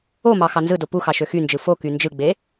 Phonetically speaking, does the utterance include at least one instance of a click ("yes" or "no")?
no